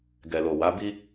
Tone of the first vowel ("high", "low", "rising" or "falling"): low